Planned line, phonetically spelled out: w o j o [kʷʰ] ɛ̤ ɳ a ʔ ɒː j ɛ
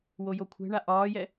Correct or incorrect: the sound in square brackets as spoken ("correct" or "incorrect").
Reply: correct